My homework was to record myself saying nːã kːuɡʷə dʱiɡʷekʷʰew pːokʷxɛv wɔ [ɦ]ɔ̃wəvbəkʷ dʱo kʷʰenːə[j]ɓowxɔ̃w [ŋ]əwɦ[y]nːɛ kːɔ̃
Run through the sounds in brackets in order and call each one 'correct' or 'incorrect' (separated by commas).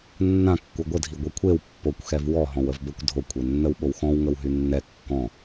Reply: correct, incorrect, correct, correct